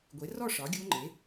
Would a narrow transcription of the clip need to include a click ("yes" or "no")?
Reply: yes